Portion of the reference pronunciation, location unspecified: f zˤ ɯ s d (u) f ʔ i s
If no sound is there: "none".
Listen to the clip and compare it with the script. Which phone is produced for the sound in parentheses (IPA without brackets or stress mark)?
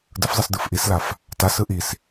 ɯ